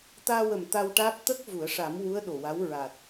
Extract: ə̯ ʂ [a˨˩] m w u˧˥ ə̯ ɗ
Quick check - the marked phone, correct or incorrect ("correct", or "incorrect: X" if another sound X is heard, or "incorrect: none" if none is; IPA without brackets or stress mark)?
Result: incorrect: a˨˩˦